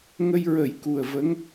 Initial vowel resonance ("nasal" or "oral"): oral